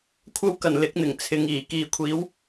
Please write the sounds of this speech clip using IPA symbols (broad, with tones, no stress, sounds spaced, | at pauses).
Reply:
kʷʰ ɐ˥ w k ɐ˨˩ n l ɪ˨˥ k̚ n̪ ɪ˨˩ ŋ t͡sʰ ɪ˨˧ ŋ iː˨˩ k iː˨ kʷʰ iː˨˥ w